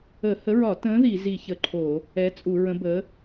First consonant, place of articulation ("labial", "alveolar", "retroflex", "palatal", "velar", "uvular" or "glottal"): glottal